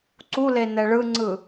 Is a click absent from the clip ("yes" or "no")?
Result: no